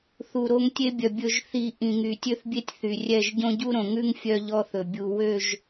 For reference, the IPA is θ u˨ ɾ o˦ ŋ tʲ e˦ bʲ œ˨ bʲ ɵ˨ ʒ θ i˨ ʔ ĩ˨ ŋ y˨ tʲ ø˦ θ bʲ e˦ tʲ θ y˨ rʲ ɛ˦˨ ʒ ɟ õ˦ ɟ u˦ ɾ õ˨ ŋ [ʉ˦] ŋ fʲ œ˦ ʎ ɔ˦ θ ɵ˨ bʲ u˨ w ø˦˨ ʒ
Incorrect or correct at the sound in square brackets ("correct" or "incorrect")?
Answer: correct